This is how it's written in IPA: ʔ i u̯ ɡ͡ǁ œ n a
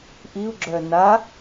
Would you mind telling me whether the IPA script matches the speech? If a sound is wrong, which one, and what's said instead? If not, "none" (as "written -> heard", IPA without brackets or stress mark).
none